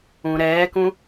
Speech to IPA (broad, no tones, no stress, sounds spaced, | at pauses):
ũ ɾ ɛː k ũ